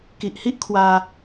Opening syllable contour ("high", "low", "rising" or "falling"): low